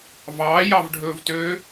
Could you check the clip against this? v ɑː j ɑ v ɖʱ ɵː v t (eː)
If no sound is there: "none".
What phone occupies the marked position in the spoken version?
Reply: øː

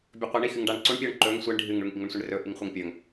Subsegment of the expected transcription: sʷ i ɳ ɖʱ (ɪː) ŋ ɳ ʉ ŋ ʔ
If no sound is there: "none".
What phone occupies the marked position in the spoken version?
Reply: ɨː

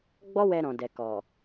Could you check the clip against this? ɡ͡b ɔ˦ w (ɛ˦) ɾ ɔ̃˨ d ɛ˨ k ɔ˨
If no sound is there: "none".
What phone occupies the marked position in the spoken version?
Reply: ɛ˧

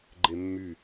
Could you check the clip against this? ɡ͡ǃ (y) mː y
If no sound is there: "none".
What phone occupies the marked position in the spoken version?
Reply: e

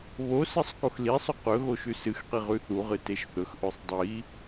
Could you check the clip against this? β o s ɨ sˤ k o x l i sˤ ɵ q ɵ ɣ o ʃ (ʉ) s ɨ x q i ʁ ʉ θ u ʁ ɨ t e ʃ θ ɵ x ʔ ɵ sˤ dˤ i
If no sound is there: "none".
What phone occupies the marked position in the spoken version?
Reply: ʉ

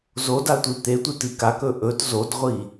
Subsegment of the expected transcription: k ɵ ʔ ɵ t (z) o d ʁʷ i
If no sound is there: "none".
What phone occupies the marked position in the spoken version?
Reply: z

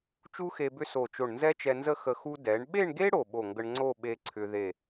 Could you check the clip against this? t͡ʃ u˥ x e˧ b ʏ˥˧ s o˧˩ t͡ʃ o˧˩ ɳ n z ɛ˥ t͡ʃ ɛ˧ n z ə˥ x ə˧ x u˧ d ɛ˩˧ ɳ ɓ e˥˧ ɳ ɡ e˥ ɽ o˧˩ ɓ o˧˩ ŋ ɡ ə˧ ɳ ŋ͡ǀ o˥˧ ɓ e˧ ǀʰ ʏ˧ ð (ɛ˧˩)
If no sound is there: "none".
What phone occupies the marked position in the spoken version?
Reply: e˧˩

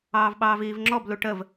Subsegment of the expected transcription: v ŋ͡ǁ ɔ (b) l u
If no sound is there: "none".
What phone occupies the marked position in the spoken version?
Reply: b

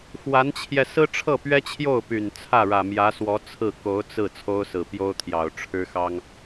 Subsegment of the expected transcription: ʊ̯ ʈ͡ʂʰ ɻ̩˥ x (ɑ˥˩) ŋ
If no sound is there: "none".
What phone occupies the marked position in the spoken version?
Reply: ɑ˥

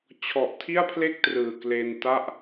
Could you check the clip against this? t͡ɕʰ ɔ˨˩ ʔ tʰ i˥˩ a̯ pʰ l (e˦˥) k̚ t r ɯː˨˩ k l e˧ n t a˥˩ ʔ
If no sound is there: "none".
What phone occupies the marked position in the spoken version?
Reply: e˥˩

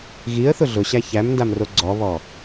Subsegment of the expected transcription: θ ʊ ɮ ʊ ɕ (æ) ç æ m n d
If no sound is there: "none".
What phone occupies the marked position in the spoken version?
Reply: æ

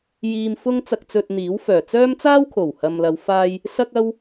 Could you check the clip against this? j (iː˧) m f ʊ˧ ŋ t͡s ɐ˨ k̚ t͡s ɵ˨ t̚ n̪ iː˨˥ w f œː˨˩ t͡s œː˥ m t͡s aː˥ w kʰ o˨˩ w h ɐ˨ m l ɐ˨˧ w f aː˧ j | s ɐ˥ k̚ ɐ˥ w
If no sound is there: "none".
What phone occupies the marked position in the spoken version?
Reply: iː˨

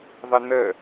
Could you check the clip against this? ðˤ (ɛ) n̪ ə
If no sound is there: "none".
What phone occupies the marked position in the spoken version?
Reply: ɪ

